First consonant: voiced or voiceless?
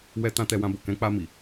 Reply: voiced